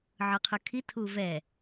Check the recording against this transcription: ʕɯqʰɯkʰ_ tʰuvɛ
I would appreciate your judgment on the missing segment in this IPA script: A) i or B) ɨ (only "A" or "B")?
A